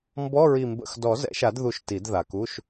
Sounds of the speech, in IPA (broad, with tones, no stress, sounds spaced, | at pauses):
m b ɔ˧˥˧ ɹ i˨˩ m b ə̰˨˩ x d ɔ˨˩˦ z ɛ̰˨˩˦ ʃ a˨˩˦ d ð u˨˩˦ ʃ t i˨˩˦ d ð a˨˩ k u˧˥˧ ʃ